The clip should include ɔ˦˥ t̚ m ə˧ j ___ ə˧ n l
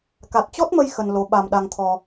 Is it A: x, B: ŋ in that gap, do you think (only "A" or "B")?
A